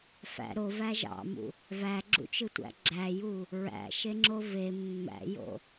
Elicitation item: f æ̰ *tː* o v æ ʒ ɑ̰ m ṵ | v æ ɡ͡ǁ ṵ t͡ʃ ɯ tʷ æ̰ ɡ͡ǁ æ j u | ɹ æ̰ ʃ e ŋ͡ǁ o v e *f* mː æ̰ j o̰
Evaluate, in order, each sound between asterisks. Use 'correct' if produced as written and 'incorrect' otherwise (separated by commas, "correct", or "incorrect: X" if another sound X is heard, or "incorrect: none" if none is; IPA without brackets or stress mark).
incorrect: ɾ, incorrect: none